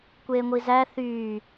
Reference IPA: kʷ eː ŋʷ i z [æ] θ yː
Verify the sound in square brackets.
correct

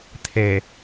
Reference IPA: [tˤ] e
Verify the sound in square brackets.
incorrect: t̪ʰ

